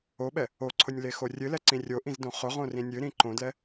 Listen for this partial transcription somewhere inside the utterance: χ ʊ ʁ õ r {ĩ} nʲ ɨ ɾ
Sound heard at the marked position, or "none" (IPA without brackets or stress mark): ĩ